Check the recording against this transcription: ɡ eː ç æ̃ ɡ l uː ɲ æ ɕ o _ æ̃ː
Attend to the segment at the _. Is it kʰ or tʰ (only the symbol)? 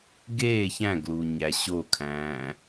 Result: kʰ